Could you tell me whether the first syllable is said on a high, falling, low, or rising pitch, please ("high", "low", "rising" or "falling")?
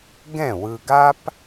falling